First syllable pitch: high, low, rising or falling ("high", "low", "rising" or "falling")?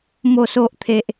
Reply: low